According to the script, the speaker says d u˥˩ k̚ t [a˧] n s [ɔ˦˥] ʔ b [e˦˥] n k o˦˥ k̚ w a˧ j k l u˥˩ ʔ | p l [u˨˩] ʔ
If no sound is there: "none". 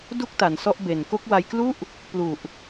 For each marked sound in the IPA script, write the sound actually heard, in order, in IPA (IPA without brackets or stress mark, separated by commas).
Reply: a˩˦, ɔ˦˥, e˨˩, u˨˩